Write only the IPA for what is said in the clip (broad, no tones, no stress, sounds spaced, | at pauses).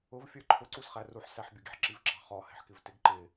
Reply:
ʊ v fʲ ə˞ ǃʰ ʊ ǀ u s χ æ r u ħ s æ ħ bʲ ə˞ ɡ i̤ ħ ǁ i v ǁ ɑ̤ χ ɔ h ɛ̤ ħ k ɪ v t ɪ ɡ ǃ ɪ